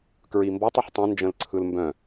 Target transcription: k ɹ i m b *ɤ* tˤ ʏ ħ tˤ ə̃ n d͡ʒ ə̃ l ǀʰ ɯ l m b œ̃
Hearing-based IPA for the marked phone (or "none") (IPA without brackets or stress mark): ɔ